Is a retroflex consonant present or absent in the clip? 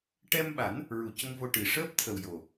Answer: present